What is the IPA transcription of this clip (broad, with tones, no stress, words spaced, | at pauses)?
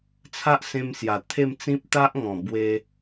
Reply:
t͡sʰa˦ʔsẽ˧msja˨˩ t̪ʰe˥˧mt͡sĩ˦p̚ t̪a˦ʔŋɔ̃˨˩ bwe˧